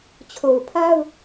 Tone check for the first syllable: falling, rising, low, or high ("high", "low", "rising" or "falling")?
low